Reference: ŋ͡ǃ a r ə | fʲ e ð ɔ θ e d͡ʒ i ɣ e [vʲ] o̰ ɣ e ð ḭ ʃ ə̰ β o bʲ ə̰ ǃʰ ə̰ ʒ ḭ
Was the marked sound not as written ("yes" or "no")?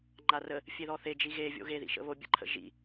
no